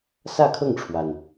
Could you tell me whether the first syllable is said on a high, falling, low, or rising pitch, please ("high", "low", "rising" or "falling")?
falling